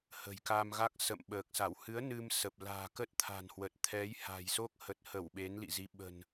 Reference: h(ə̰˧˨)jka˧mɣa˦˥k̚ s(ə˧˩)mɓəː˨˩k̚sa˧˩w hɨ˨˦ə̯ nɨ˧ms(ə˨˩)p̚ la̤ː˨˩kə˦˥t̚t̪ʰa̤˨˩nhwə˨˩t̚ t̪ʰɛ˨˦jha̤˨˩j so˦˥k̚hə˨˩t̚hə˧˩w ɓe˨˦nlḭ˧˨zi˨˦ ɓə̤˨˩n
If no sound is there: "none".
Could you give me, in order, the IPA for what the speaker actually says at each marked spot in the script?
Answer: ə̤˨˩, ə̰˧˨, ə˨˩

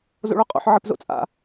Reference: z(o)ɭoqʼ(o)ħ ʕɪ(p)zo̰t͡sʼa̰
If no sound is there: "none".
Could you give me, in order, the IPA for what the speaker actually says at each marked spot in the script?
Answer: o̰, o̰, p

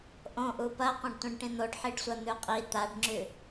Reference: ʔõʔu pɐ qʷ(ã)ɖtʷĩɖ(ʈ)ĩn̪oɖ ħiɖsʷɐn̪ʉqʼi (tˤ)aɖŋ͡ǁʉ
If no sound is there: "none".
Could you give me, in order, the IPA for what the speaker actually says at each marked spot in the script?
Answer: ɐ̃, ʈ, t̪

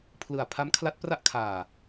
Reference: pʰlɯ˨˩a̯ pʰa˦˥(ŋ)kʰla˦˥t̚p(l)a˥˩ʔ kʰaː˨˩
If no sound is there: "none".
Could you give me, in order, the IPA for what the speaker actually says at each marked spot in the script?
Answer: m, r

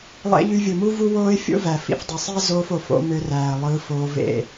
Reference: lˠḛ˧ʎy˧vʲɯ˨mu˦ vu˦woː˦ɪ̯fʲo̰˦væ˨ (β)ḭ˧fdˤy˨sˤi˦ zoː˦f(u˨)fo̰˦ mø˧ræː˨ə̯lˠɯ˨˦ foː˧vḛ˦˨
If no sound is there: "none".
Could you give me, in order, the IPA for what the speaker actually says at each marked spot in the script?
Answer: f, o˨

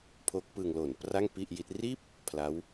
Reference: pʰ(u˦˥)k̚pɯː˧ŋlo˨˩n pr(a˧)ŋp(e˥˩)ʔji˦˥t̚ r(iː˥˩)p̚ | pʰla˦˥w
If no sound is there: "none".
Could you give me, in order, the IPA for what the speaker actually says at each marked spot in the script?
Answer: o˦˥, a˥˩, i˥˩, iː˥˩

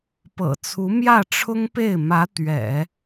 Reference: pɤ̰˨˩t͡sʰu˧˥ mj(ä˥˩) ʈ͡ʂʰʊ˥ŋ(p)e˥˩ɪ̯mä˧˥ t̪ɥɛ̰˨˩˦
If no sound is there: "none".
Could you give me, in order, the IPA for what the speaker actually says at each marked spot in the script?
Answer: ä˥˩, p

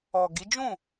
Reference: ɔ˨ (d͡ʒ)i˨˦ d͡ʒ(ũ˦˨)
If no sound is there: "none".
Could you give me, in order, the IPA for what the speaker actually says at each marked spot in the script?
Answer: ɡ, ũ˦˨

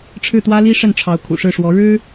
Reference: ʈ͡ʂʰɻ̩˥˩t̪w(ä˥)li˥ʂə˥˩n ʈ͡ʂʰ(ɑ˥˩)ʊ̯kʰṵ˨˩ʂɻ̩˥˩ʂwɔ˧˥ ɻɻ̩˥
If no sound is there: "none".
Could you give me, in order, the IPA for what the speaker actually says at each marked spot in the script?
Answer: ä˥, ɑ˧˥

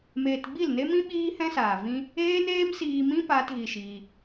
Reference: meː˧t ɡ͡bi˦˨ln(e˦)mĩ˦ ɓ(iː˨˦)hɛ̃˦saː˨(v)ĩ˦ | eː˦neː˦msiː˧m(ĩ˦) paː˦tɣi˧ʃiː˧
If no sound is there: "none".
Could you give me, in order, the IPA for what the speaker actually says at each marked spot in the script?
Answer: e˦, iː˦, v, ĩ˦

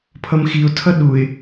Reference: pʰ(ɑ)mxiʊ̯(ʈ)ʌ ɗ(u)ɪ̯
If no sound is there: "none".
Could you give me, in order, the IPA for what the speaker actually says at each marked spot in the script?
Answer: ʌ, tʰ, u

